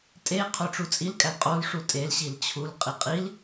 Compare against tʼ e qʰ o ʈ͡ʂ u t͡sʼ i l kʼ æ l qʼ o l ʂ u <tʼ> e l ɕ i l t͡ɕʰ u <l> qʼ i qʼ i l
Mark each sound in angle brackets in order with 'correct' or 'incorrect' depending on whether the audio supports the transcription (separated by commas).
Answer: correct, correct